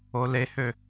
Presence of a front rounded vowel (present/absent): present